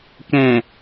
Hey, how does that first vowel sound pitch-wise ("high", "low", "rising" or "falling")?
low